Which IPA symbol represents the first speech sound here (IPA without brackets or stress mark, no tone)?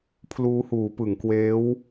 pʰ